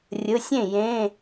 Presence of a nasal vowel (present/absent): present